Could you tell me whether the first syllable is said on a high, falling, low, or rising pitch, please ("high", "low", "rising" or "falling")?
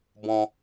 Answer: high